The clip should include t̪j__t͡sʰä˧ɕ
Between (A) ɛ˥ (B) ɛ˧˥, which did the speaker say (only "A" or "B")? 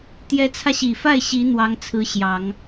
B